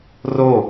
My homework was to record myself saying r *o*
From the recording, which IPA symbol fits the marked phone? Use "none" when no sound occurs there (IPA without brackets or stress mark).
o